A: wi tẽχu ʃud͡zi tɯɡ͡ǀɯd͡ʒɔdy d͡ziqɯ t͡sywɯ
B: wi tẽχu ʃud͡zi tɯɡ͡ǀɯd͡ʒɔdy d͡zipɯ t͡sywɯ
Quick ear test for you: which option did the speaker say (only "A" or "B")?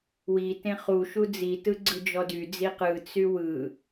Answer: A